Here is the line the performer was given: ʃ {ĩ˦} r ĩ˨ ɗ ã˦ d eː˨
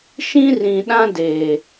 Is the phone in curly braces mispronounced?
no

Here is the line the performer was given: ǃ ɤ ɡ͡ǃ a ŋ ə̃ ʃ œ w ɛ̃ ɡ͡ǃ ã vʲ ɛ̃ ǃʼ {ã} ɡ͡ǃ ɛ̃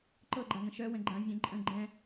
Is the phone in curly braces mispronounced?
yes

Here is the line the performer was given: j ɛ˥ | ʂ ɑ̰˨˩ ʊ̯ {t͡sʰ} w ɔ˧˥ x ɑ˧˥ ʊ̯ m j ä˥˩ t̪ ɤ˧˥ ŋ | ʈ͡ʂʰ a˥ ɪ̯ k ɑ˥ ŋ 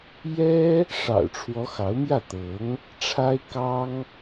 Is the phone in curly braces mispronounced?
yes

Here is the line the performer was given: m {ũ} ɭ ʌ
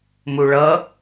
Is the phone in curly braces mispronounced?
yes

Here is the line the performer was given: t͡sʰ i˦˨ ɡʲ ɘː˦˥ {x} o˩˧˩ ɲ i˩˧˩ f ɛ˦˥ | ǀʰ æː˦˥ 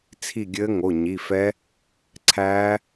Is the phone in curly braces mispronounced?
yes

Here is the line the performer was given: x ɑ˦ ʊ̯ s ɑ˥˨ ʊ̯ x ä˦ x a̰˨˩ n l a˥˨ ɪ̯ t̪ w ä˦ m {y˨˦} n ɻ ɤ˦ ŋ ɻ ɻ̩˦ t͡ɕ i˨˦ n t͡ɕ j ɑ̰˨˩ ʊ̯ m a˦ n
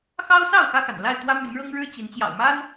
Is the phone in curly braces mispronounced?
no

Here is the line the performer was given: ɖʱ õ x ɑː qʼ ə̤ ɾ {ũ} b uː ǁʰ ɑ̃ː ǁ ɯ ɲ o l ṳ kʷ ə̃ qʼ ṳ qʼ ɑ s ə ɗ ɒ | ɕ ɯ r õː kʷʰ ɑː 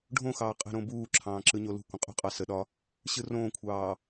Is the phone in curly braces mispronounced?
yes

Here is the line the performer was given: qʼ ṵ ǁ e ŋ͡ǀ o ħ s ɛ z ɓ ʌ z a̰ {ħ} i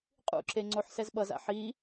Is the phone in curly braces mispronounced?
no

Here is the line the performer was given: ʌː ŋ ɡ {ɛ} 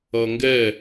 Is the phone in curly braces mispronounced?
no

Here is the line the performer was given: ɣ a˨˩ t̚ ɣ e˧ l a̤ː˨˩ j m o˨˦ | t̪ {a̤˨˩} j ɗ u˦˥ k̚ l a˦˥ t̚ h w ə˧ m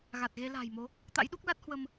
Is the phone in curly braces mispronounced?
yes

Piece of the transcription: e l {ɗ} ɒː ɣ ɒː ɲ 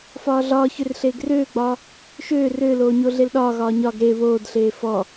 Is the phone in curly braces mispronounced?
no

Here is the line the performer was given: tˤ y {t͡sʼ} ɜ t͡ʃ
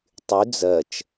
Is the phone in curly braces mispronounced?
yes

